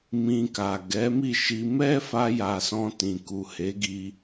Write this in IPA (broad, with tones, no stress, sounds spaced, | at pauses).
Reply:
m ĩ˧ k a˨ ɡ ɛ˨˦ m i˦˨ ʃ i˧ m ɛ˦ f a˧ j a˨ s ɔ̃˧ t ĩ˨ k u˨ h e˨˦ ɡ i˧